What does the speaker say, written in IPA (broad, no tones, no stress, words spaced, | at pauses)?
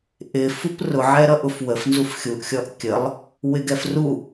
ʔɪfup rʊʕɛɾʌʔʊf wəfnzuf xʲuʔxʲɔʔ kʲəlˠ | wɪɡɛfru